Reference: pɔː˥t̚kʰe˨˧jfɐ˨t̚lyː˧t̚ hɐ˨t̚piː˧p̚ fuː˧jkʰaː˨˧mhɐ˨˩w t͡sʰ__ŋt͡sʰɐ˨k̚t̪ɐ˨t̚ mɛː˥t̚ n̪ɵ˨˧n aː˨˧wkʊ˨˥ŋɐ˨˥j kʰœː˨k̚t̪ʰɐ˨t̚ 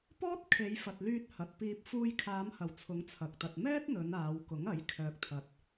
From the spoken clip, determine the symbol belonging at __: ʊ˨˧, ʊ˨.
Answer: ʊ˨˧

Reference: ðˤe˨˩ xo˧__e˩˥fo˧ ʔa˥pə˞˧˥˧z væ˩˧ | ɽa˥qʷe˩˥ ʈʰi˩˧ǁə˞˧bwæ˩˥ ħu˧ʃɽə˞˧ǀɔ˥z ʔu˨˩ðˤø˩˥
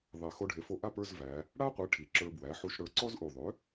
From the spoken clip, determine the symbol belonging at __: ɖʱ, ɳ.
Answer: ɖʱ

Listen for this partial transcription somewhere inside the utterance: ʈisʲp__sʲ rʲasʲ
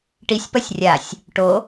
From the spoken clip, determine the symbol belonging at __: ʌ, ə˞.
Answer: ʌ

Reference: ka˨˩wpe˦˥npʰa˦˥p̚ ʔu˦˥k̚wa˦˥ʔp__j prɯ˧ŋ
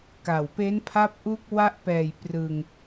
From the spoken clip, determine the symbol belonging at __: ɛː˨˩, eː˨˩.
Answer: ɛː˨˩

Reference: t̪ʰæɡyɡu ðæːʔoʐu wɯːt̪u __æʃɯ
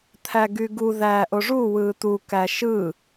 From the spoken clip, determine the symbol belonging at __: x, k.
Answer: k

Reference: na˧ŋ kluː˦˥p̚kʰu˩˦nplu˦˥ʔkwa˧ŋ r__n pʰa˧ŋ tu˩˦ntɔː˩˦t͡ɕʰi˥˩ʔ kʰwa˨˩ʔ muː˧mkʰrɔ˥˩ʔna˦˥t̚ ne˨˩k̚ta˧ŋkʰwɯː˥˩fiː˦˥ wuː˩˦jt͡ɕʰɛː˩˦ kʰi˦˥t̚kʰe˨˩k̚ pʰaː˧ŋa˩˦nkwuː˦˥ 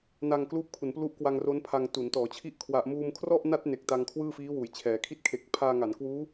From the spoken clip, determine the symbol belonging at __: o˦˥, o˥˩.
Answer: o˦˥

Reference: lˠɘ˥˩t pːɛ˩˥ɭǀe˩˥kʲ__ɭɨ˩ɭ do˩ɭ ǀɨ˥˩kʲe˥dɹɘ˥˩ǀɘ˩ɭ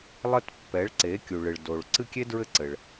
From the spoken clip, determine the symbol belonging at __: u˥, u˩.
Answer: u˩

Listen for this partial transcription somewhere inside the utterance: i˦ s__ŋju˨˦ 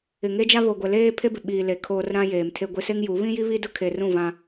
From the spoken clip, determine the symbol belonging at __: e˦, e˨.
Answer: e˦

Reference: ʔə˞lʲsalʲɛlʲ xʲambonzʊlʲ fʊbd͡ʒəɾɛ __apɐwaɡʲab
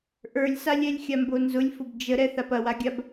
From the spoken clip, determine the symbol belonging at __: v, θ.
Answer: θ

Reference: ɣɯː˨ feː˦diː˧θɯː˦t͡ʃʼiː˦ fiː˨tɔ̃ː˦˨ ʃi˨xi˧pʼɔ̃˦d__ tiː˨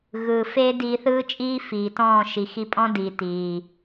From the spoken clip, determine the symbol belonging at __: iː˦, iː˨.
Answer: iː˨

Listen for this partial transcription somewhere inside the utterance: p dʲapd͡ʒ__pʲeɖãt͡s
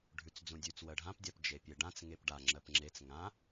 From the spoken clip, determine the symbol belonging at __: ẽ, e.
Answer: e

